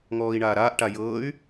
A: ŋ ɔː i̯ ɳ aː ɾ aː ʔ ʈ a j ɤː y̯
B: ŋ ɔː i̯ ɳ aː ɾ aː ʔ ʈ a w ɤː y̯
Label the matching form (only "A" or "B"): A